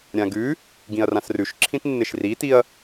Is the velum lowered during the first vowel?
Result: yes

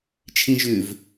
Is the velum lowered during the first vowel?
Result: yes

